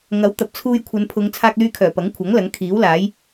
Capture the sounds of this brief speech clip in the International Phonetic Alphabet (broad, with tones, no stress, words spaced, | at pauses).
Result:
ŋɐ˨˥w t̪ɐ˨p̚t͡sʰuː˧jkʷʰɐ˨˧npʰʊ˨˧ŋ t͡sʰaː˧k̚lyː˧kʰœː˨˩ pɐ˨˥ŋkʷʰɐ˨˥ŋ lɐ˨˥ŋkʰiː˨˥wlaː˨˥j